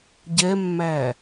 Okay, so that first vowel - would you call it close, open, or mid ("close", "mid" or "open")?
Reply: mid